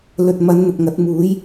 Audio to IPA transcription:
l ɵ˨ t̚ m ɐ˨˧ n n̪ ʊ˨ k̚ ŋ ɐ˨˥ t̚ m uː˨˥ j

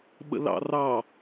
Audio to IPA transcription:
ɓ ə̰ l ɑ̰ r ɑ

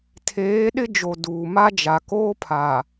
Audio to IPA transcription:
tʰ eː˨˦ ɗ ɪ˦ d͡ʒ o˨ d uː˨ m a˦ d͡ʒ a˨ k oː˦ pʰ a˨

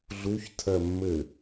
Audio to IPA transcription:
ɮ u ç tʰ ɜ mː ɘ

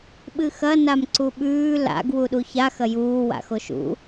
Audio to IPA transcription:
ɓ ɨ x ɐ n a m ǀ u ɓ ʉː l a̰ ɡ w u ɗ u ç a x ɐ j uː w a̰ x o ʃ ṵ

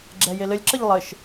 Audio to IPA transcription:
ɡ͡ǁ ɛ j e l ɘ lʲ ǁ ə ʎ lˠ ɘ ʃ

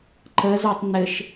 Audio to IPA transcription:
ǃ ə z o tˤ n̪ ɘ ʃ

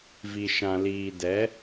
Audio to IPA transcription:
v i˨ ʃ ã˨ l iː˨ d ɛ˨˦

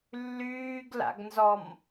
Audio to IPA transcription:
lː yː ɡ l a̰ ɡ n z ɔ m

